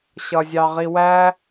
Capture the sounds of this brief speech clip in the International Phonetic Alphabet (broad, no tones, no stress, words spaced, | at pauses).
ɕʌzʲɑʁiwæ